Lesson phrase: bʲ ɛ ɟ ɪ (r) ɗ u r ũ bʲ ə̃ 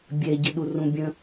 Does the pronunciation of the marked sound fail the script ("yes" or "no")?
yes